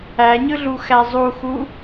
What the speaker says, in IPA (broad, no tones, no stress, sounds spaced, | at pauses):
æ ɲ ɯ ɮ u x æ zˤ u x u